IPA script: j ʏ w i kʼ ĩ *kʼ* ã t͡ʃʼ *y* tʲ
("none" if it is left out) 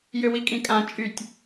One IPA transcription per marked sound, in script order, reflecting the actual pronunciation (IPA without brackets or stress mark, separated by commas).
kʼ, y